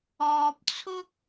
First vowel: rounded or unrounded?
rounded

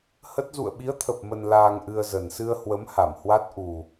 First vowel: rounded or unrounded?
unrounded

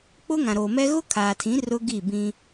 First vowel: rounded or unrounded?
rounded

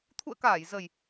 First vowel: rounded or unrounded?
rounded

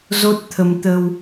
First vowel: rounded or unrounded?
rounded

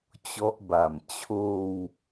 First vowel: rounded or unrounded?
rounded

